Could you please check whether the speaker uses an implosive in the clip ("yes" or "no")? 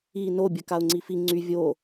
no